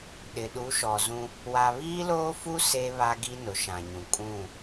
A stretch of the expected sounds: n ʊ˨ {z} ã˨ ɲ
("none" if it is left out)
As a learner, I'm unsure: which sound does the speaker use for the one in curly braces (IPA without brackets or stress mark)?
ʃ